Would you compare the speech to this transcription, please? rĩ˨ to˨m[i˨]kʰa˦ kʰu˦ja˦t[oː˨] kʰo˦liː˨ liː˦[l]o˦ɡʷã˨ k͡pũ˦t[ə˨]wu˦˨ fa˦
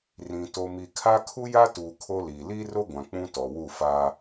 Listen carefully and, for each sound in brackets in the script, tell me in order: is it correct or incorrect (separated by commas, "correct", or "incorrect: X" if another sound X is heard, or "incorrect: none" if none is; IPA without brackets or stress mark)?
correct, incorrect: uː˨, incorrect: r, incorrect: ɔ˨